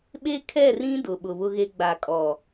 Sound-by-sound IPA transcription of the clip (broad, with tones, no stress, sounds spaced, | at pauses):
ɓ e˦ kʰ ɛ˦˨ r ĩ˦ d ʊ˨ ɓ ʊ˨ β ʊ˦ ɣ e˦ ɡ͡b a˨ kʼ ɔ˨